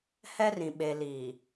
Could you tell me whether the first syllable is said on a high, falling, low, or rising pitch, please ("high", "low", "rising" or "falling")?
high